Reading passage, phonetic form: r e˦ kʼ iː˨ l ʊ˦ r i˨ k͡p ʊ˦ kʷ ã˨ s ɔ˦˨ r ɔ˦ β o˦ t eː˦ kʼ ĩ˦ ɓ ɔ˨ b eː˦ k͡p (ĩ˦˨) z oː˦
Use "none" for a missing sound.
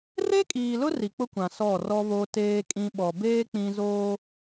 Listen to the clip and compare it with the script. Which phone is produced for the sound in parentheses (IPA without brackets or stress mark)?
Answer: ĩ˦